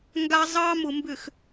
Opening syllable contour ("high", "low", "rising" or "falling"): high